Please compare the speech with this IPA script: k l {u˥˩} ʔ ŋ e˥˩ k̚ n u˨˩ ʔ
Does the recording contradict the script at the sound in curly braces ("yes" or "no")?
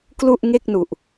no